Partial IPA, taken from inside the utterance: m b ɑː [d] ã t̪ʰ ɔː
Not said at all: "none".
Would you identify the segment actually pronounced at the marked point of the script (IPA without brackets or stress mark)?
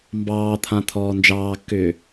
t̪ʰ